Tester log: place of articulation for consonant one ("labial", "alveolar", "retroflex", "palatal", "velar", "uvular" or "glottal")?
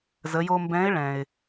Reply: alveolar